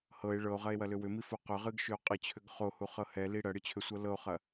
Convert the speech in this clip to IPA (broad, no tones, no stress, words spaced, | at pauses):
hɤe̯ ɭɤo̯ʁɐe̯wɐlʏ wʏmifo qʏʁɨɡʃʏo̯ qʼɨt͡ɕʰʏɡ χohuχɤ hɛli ɽɐɽɨt͡ɕʰʏsʷɤ lɤo̯χɐ